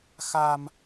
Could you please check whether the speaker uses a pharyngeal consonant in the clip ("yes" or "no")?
no